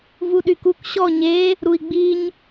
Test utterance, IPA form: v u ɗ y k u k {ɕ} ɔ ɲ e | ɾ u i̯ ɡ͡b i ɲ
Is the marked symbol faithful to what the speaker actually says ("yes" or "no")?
yes